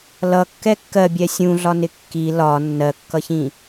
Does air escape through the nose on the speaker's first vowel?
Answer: no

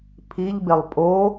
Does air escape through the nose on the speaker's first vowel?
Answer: no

